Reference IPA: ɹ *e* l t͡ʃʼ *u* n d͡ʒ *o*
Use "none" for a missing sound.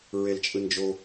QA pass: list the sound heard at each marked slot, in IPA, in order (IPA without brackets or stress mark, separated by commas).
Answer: e, ɯ, o